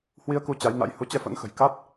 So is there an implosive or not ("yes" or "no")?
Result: no